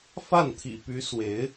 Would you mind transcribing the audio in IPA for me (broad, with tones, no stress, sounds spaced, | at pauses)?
f a˥˩ n t̪ʰ ḭ˨˩ p y˧˥ s w e˧˥ ɪ̯